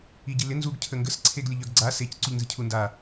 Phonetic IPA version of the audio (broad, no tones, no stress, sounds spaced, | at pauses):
i ɟ i l ɪ n z u ɡ cʰ ə ŋ ɡ ə s ǀʰ e ɡ lʲ ə ʎ œ ɡ ɡ͡ǀ a s e c ǀ u ʎ n z ɪ cʰ u n d a